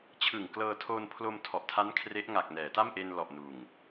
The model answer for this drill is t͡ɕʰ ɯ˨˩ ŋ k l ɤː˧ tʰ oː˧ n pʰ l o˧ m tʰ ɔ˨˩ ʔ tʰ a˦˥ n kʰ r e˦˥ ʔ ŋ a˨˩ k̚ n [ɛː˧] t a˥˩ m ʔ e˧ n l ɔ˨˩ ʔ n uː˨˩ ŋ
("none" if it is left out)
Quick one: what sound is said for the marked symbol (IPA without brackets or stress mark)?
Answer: ɛː˩˦